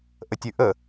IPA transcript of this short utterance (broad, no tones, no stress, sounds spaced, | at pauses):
ʔ ə tʲ ʉ ʔ ə